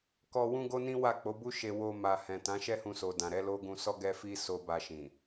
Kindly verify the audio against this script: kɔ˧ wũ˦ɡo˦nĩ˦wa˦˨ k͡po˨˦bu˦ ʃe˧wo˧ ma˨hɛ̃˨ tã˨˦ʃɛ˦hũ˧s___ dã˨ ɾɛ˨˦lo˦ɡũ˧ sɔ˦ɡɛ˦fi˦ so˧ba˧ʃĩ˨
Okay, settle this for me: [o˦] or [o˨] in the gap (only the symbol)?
o˨